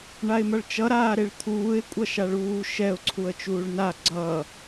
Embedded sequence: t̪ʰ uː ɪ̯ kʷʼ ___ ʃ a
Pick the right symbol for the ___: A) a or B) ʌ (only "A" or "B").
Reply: B